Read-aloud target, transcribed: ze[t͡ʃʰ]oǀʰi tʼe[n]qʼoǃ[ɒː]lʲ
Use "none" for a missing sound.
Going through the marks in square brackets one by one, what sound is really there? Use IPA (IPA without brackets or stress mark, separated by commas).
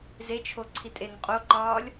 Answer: t͡ʃʰ, n, ɒː